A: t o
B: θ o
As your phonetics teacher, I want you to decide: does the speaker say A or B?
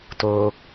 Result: A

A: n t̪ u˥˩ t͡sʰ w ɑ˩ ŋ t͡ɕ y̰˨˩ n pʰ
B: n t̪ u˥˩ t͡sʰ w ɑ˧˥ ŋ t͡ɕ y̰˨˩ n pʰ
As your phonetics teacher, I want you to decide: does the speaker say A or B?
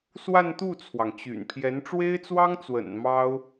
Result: A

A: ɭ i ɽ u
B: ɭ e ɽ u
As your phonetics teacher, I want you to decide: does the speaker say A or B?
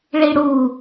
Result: A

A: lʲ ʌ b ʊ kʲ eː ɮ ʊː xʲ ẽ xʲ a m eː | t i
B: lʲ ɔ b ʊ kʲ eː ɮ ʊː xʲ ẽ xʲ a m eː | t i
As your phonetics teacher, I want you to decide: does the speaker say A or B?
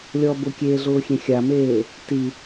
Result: B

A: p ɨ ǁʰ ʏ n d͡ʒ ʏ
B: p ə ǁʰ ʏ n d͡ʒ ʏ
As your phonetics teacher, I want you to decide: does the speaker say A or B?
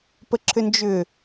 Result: B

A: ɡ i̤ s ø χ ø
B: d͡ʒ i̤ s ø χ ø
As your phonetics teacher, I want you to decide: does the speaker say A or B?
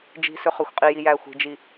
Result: B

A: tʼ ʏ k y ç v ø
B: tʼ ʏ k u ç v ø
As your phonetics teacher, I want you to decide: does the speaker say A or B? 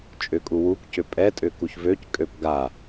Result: B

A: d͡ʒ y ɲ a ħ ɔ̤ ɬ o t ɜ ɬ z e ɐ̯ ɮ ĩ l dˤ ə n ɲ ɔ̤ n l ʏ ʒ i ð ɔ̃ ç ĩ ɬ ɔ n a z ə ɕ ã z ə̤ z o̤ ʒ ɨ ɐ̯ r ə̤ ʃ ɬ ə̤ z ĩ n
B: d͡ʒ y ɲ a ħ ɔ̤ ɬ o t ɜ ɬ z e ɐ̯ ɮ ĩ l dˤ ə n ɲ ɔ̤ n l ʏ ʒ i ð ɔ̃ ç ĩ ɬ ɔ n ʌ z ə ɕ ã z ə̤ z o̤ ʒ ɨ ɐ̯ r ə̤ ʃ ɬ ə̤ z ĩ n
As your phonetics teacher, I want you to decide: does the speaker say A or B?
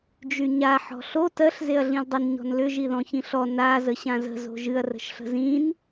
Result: A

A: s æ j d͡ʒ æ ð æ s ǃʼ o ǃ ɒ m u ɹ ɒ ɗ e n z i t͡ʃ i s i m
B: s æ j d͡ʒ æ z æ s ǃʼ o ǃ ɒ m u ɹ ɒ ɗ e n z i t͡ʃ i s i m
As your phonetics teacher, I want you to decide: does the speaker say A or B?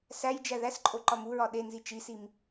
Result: A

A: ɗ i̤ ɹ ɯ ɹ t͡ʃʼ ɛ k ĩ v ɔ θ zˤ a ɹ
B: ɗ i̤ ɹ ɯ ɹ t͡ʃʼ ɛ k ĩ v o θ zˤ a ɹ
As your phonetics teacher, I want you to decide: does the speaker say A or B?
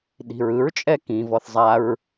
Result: A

